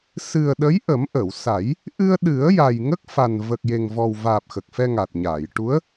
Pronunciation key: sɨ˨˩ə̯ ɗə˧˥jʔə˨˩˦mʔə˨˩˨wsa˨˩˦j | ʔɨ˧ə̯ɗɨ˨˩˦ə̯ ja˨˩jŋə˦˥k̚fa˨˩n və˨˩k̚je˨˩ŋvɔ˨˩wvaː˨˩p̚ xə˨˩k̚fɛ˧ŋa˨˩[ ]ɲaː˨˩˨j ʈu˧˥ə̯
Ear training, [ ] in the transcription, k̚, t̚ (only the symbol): t̚